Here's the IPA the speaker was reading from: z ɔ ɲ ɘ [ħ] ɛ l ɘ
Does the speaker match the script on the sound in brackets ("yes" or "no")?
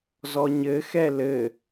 no